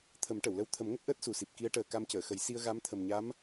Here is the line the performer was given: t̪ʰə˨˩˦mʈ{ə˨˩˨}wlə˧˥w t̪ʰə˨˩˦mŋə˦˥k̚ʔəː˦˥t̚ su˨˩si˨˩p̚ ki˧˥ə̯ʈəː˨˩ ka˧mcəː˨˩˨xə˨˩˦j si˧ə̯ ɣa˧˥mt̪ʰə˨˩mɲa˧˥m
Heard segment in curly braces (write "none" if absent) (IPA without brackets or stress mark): ə˨˩˨